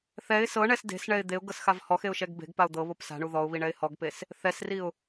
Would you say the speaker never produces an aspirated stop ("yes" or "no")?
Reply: yes